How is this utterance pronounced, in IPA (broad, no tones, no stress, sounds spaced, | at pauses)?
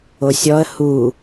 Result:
o sʲ ɔ ə̯ h u